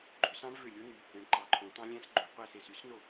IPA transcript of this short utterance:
ɡ͡ǃ ø˨˦ s ɑ̃˦˥ ɳ v ø˦˨ lʲ o˦˥ n y˨˦ | ẽ˨˦ ɳ ǃ ɑ˨˦ ǃʰ õ˨˦ t̪ ɑ̃˦˥ lʲ æ̃˦˥ s ɡ͡ǃ ø˨˦ qʷ æ˦˨ s e˦˨ s y˦˥ s n o˦˨

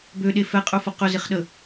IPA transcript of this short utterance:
b ø ɗ e f ɛ qʼ ɵ f ə q ɵ z ɪ χ ɗ ə

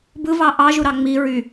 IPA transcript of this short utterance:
b ɯ v ɑ ʔ ɑ ʒ u ɾ ɑ ŋ͡m i ɹ y

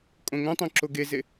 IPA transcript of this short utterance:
kʼ õ ŋ õ tˤ õ ǁ o ɡ e z e

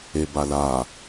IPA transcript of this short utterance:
e b a l a

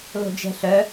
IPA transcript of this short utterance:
l o̤ d͡ʒ ɛ̤ ɬ œ

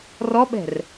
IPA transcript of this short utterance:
r ɔ ɓ ɛ̤ r

